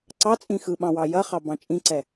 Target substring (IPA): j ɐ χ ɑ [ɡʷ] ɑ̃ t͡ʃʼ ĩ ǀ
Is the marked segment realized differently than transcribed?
yes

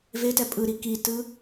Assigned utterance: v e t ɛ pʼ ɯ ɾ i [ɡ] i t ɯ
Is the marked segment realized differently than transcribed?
yes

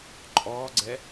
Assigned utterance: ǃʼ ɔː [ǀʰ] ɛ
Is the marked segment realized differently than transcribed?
yes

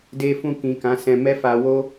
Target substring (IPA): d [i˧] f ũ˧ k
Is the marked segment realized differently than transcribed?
yes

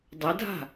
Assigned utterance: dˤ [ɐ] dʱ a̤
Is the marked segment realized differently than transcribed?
no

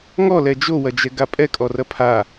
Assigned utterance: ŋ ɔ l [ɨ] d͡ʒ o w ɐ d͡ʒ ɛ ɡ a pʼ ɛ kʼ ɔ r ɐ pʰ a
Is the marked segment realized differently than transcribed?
yes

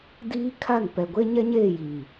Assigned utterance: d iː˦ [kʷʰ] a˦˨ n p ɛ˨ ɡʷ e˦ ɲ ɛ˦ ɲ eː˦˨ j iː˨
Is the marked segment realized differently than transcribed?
yes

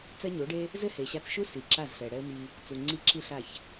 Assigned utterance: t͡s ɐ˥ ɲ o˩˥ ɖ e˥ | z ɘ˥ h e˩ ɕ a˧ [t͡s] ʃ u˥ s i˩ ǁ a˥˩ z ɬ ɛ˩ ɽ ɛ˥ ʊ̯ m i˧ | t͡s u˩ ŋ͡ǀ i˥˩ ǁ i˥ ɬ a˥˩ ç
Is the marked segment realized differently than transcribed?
no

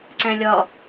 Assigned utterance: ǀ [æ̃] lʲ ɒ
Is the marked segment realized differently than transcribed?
no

